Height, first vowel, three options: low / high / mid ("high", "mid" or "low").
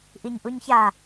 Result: high